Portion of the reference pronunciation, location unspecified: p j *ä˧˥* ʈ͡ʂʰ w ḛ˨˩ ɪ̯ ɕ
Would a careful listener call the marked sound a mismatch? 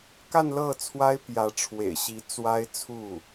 no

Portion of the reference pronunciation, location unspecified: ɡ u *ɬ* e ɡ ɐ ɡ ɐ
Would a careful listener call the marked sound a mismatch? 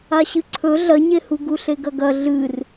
no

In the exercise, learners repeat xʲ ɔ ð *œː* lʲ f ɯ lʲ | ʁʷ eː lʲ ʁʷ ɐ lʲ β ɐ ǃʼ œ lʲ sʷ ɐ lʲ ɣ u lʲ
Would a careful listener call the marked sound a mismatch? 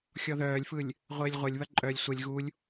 no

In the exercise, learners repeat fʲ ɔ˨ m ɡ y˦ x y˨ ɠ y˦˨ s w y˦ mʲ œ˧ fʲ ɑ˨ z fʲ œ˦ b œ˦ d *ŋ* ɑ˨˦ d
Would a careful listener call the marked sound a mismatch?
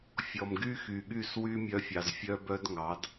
no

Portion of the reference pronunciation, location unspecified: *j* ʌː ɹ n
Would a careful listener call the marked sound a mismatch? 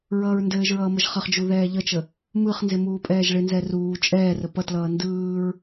yes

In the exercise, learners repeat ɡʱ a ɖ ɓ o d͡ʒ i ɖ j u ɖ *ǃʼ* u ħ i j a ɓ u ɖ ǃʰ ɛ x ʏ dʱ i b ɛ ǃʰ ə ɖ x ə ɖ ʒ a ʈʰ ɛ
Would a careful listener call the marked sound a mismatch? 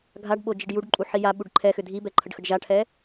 no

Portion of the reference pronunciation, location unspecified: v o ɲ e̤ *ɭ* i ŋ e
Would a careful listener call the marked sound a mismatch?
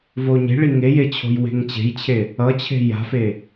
no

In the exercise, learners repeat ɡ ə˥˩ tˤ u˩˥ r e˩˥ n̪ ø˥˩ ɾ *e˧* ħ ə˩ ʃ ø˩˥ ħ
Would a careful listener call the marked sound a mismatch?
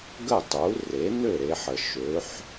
no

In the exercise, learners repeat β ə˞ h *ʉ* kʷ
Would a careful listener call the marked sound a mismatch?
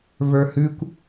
no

